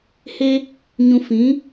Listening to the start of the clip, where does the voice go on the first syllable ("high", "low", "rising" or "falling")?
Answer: high